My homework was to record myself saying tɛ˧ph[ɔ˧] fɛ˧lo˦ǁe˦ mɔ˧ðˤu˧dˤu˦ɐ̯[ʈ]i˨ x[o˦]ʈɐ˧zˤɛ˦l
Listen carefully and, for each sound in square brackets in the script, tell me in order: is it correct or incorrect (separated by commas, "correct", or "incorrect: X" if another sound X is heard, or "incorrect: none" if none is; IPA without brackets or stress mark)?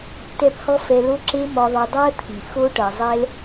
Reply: correct, incorrect: t̪ʰ, correct